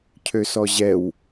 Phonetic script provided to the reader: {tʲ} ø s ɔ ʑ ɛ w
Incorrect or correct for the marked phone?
incorrect: cʰ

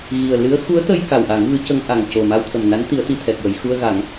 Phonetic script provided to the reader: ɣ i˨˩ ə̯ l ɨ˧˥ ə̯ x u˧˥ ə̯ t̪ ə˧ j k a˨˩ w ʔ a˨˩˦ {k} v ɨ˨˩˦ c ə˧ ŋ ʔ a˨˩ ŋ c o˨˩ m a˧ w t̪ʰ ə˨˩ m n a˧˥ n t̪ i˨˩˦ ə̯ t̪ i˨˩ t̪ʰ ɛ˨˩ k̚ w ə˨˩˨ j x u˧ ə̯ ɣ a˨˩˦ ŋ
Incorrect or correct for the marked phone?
incorrect: ŋ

